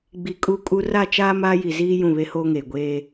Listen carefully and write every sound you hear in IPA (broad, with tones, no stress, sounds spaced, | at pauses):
ɡ͡b i˨ kʼ u˦˨ kʼ u˦ r a˦˨ t͡ʃ aː˦ m aː˦ j i˨ z iː˦ j ũ˦˨ β e˦ h oː˦ ŋ eː˨ ɡʷ eː˦